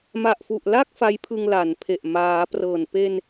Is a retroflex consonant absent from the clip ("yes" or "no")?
yes